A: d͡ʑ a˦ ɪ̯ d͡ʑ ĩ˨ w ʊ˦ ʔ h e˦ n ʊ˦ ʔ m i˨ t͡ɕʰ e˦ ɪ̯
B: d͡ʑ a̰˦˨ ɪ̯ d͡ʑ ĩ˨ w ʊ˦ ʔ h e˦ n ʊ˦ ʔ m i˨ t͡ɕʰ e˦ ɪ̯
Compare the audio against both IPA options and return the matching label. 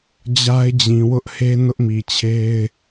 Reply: A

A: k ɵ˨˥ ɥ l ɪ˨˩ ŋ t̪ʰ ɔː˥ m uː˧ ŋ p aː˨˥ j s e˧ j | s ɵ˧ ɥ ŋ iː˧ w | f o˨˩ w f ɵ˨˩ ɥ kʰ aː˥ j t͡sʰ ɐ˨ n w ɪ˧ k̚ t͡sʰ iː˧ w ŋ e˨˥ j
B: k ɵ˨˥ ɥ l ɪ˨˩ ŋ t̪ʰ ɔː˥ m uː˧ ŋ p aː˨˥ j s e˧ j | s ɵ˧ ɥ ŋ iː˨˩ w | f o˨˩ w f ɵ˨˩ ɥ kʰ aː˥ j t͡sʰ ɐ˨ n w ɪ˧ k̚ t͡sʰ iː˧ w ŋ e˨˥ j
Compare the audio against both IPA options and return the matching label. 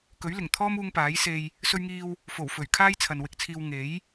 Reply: A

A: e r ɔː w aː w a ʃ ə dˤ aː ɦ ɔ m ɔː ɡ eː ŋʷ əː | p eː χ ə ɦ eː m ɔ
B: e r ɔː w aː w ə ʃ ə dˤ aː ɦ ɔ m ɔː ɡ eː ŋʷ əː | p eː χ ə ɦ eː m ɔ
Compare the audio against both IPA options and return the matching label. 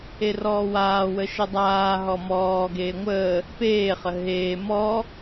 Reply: B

